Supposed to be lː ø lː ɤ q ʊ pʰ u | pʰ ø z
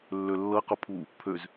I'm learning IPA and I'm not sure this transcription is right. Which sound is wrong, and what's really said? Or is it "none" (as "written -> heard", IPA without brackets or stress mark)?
none